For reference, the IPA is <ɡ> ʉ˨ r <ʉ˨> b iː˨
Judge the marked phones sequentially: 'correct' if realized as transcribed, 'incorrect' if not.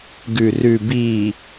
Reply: correct, correct

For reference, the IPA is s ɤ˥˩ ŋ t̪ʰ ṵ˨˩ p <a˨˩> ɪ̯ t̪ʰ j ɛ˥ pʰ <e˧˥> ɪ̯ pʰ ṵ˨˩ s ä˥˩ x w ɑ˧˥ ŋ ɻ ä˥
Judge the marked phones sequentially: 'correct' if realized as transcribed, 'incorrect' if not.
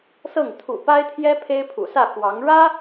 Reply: incorrect: a˥, incorrect: e˥

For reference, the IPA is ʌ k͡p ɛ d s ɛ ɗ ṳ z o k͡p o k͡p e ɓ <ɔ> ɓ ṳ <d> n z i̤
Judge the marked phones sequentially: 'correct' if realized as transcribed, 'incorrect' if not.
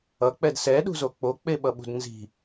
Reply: incorrect: ʌ, correct

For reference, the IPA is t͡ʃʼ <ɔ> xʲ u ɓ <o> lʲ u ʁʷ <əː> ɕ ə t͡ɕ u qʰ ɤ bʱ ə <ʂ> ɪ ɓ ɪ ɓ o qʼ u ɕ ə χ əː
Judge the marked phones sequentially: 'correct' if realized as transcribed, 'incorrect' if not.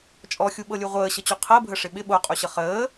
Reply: correct, incorrect: ɤ, correct, correct

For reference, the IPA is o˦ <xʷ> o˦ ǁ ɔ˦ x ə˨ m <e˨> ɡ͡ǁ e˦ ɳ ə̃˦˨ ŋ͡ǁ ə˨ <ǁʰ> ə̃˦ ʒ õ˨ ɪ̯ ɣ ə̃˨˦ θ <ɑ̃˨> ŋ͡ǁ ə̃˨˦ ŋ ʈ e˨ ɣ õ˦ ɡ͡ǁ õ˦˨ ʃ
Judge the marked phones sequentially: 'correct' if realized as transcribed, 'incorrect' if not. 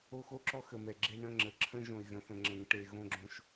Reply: incorrect: x, incorrect: ɛ˨, correct, incorrect: ə̃˨

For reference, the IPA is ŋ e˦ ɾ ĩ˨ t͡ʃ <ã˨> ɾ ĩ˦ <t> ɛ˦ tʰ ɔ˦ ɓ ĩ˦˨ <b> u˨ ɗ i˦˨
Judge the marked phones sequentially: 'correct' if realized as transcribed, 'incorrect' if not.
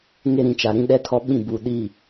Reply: incorrect: a˨, incorrect: ɗ, correct

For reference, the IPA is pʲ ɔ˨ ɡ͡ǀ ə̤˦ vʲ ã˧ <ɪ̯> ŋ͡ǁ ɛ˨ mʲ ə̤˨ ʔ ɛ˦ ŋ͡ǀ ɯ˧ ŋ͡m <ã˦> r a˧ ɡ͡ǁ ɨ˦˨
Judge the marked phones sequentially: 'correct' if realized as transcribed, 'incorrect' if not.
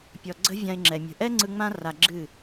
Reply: correct, correct

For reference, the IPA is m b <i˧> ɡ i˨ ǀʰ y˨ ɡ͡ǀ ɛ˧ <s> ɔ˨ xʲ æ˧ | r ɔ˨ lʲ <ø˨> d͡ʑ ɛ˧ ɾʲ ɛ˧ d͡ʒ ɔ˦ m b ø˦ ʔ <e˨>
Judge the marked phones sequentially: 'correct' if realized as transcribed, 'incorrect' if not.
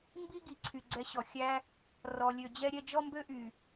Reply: incorrect: i˦, incorrect: ɕ, correct, incorrect: y˨

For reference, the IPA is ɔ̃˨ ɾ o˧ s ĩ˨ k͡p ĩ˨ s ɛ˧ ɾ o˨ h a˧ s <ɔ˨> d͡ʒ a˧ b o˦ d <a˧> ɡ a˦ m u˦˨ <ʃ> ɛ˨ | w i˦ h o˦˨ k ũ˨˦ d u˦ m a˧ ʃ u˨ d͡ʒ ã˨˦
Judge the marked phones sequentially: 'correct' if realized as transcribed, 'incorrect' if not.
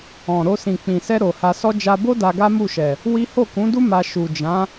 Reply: incorrect: ɔ˦, correct, correct

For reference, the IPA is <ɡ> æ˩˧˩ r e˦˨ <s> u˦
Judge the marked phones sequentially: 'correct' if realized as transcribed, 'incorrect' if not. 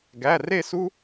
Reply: correct, correct

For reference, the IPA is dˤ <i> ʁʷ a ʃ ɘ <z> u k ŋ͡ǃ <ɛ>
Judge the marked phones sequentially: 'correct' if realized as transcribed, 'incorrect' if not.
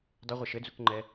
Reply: incorrect: ɪ, incorrect: d͡z, correct

